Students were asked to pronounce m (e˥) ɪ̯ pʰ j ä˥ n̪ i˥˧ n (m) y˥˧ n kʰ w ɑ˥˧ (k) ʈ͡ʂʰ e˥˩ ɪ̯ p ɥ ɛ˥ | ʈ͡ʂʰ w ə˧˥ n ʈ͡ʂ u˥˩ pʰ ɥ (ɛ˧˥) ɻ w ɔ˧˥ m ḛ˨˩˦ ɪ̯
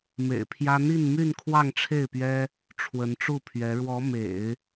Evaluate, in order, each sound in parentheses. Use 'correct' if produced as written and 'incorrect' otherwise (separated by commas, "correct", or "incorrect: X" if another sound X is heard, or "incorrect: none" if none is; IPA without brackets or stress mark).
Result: incorrect: ḛ˨˩, correct, incorrect: ŋ, correct